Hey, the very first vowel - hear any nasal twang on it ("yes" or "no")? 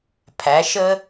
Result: no